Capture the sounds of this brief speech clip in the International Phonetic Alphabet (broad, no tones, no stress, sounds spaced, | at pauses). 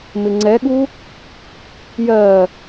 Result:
m ɪ ŋ͡ǀ ɛ ɠ u | j ɜ